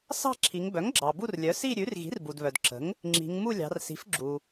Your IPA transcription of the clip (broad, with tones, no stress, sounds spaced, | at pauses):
s ɑ̤˥˧ ǁʰ i˩˧ ŋ b œ˩˥ ŋ ɡ͡ǁ ɑ˩ b u˥˧ r lʲ œ˩˥ s i˥˧ ɾʲ ʉ˩˥ r ɣ i̤˩˥ r b u˩ d β œ˩ d ǁ ə̤˩˥ ŋ | ŋ͡ǁ i̤˩˧ ŋ m u˥˧ lʲ ɑ̤˩˧ r s i̤˩˥ f ɡ͡ǁ u˩